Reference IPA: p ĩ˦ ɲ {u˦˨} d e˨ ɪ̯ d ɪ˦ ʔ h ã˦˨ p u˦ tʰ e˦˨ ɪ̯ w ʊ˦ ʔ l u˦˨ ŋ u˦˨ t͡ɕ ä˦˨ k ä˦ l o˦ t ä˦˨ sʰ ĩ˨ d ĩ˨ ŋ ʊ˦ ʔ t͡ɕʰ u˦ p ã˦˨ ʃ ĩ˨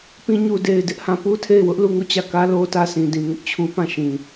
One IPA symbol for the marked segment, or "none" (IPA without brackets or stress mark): u˨